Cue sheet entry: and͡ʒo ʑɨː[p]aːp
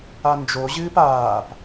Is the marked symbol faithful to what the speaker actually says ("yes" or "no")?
yes